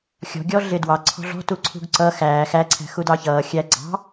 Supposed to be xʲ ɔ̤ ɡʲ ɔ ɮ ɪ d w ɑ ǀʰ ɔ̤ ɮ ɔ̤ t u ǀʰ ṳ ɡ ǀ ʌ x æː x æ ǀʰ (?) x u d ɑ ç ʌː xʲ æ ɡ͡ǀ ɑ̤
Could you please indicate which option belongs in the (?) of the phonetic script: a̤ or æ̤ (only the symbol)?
æ̤